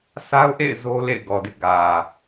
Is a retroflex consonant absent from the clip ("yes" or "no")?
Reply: yes